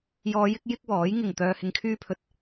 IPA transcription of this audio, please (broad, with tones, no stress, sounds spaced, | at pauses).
j ɔː˨˧ j ɪ˧ k̚ j ɪ˥ k̚ w ɔː˨˥ j ŋ ɪ˨˩ ŋ t̪ œː˨ h ɪ˨ ŋ kʰ yː˧ pʰ ɵ˨ t̚